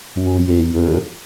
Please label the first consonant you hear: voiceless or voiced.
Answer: voiced